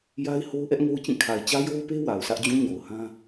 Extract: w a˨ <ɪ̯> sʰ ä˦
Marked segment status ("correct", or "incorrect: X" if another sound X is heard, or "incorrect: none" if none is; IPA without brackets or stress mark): incorrect: ʊ̯